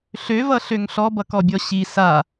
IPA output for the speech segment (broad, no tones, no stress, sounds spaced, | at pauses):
ɬ ø v ʌ ɬ ø ŋ ɬ ɔ b ʌ k ɔ bʲ ɔ ɕ i s a